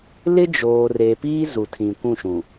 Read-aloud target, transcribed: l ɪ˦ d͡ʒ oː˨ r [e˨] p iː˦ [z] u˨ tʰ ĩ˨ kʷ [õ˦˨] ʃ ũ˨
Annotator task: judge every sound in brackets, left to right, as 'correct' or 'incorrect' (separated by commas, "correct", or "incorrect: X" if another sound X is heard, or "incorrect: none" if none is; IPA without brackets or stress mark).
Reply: correct, correct, incorrect: ũ˦˨